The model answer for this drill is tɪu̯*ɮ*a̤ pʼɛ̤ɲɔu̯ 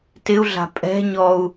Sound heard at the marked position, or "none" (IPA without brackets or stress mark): ɮ